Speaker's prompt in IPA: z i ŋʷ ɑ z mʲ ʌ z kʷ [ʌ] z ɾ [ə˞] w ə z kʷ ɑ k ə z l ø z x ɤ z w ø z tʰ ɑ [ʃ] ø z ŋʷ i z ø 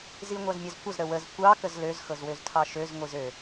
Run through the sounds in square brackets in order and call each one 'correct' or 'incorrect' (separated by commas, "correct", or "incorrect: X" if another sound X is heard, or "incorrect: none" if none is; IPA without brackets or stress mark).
correct, incorrect: ə, correct